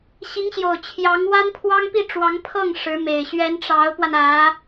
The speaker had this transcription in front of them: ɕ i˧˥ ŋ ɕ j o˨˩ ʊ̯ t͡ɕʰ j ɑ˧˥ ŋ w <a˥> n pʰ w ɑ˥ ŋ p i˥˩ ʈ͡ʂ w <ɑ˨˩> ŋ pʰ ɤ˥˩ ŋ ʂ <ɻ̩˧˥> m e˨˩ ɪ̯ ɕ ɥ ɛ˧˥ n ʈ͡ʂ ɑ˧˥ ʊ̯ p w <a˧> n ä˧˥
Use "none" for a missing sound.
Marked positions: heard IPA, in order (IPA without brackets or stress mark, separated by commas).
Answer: a˥, ɑ˧˥, ɻ̩˧˥, a˧